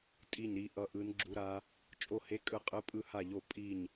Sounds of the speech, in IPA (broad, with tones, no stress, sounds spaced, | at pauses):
tʼ i˥˧ ɲ ɾ i˦˥ ʔ ʌ˦˥ ʔ ɯ˦˥ n ɡ͡ǁ u˦˥ ɾ a˦˥ | t͡ʃʼ o˥˧ h e˦˥ kʼ ɯ˥˧ qʼ ɯ˦˥ pʼ ɯ˥˧ h a˥˧ ʎ o˥˧ pʼ i˥˧ ɲ